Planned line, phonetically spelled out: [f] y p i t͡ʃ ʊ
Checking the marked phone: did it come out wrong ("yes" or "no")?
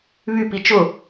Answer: yes